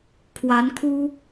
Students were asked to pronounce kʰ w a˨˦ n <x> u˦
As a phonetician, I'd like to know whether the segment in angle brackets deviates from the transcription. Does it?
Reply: yes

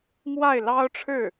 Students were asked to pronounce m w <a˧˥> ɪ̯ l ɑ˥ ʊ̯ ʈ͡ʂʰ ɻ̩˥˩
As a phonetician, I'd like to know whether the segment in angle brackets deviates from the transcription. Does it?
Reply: yes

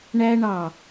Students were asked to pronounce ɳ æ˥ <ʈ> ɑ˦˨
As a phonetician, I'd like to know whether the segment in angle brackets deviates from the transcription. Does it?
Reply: yes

